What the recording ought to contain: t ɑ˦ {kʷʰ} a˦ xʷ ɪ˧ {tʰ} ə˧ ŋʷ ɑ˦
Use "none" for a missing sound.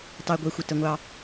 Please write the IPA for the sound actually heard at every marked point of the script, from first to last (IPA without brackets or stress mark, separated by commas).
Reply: ɡʷ, t